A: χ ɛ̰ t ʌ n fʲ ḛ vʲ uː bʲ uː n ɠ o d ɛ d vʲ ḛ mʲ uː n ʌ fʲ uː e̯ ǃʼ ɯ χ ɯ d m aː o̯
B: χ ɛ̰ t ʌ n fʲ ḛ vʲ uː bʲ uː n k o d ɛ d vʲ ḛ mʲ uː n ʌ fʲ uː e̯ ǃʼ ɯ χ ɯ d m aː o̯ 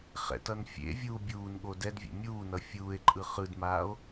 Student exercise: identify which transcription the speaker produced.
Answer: A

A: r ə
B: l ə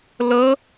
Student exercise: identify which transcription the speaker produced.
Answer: B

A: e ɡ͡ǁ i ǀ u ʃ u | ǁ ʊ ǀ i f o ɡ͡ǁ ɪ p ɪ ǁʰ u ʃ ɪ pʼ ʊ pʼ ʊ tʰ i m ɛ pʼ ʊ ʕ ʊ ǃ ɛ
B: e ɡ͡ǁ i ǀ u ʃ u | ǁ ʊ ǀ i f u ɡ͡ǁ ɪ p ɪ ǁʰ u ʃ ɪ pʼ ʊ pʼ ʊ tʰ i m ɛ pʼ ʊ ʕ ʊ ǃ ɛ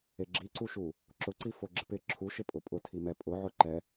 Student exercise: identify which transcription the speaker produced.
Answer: A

